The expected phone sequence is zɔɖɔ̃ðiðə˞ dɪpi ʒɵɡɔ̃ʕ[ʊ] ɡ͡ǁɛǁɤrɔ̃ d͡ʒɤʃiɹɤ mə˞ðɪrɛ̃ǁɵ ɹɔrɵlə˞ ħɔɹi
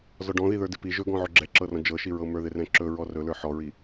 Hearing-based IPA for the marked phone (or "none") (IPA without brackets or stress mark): ɵ